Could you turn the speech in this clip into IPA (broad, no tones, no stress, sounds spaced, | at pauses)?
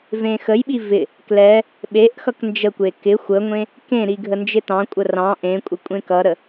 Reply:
v ẽ x ə j ɓ i v ɪ | k l ɛ | ɓ e ʔ x ʌ k n d͡ʒ ə kʷ e k ɪ xʷ ə ŋʷ ẽ | k ẽ ɾ i ɡʱ ə n d͡ʒ ɪ t ɑ̃ kʷʼ ə r ɑ̃ ʔ ẽ kʷʼ ɪ kʷʼ ẽ k ʌ ɾ ə